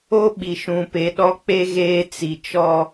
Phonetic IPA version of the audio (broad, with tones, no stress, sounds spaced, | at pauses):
o˦ ɓ i˨ ʃ ũ˨ p e˨ ɗ ɔ˦ k͡p e˦ ɣ eː˦ t͡s i˨ t͡ʃ ɔ˦